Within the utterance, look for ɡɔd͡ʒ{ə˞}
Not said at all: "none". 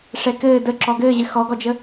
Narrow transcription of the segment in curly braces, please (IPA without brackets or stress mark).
ə